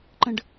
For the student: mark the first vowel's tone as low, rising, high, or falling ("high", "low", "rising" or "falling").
high